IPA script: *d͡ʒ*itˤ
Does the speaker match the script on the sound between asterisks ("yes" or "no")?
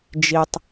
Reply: yes